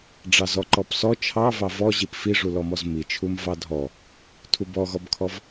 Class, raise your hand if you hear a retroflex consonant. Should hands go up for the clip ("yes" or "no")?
yes